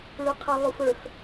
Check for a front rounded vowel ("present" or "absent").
present